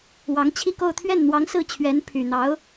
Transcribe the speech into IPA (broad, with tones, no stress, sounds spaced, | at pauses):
w ɑ˧˥ ŋ t͡ɕʰ i˥˧ k o˥˧ ʊ̯ t̪ʰ ɥ ɛ˥˩ n n̪ w ɑ˧˥ ŋ s ɹ̩˥˩ t͡ɕʰ ɥ ɛ˧˥ n pʰ y˨˩ n̪ ɑ˧˥ ʊ̯